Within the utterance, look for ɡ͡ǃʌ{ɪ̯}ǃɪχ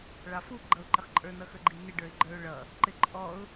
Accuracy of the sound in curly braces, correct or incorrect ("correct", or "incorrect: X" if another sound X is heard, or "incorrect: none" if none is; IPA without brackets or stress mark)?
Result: incorrect: ʊ̯